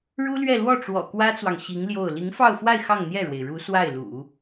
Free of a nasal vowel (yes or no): yes